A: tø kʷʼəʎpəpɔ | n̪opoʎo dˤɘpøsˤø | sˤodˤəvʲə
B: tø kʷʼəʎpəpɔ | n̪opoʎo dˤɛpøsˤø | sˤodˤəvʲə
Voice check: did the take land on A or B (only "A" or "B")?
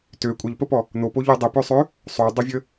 A